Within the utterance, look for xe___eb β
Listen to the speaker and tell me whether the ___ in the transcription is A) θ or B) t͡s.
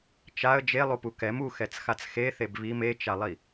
A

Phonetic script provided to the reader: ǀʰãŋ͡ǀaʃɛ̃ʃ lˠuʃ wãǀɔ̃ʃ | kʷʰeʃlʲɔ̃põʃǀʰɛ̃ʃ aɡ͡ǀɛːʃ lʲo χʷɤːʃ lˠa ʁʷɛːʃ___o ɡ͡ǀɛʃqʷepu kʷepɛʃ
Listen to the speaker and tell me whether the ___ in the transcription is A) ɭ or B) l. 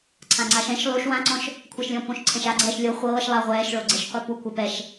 A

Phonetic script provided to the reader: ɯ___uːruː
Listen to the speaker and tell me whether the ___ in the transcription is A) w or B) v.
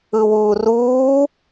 A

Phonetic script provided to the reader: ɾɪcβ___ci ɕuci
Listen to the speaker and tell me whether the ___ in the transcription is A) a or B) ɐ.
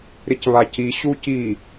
A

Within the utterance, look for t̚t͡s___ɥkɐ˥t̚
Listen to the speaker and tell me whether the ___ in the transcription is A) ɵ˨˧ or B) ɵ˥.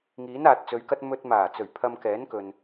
A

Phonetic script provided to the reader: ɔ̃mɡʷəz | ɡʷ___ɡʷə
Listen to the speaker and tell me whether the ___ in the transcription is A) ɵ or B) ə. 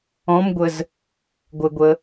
B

